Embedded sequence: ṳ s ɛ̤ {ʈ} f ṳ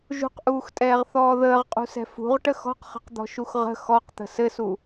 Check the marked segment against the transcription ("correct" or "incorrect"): incorrect